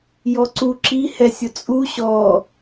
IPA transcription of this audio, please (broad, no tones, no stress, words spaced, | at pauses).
jɔǀu ǁi hɛsʲʊt͡sʼu ɕɔ